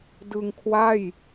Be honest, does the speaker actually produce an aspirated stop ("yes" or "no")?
yes